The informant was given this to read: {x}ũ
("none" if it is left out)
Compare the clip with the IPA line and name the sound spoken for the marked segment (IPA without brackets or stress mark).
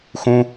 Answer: x